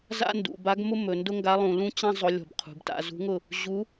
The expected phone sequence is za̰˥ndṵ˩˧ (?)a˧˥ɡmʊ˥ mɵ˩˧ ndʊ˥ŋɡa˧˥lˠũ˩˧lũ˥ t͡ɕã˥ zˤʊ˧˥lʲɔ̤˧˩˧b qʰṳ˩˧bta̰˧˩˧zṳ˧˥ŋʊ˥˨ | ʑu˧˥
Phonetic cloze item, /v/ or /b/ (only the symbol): b